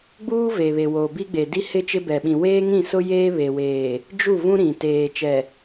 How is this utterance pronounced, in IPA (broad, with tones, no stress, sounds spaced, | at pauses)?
ɡ͡b uː˦ v e˨ β e˨ w o˨ b i˦ ɡ͡b e˨ d i˦ h ɪ˦ t͡ʃ ɪ˦ b ɛ˨ ɓ ĩ˨ w eː˦ ŋ ĩ˦˨ s ʊ˦ j eː˦ β e˨ w eː˨ | d͡ʒ u˦˨ v ũ˦ ɾ ĩ˨ t eː˨ t͡ʃ ɛ˨